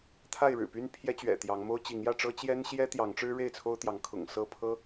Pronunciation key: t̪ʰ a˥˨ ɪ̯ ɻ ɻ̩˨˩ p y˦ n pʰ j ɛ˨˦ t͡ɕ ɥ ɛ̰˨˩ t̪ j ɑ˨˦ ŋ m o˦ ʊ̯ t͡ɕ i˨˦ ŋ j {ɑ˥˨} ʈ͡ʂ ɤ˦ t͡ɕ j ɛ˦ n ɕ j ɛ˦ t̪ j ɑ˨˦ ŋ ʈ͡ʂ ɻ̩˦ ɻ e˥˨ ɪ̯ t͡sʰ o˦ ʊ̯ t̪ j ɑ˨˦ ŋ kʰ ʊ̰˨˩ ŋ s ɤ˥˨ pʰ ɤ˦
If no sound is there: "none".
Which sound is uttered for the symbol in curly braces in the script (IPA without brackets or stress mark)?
ä˥˨